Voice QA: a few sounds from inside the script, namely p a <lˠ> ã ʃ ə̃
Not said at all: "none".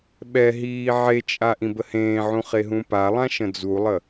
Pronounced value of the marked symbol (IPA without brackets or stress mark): lˠ